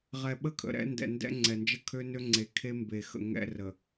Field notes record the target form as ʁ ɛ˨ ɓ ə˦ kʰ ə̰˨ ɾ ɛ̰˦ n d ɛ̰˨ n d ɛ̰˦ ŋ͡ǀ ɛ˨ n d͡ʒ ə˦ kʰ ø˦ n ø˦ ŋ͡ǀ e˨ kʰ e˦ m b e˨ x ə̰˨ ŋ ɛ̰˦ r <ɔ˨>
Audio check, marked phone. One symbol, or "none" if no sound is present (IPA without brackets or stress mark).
ə˨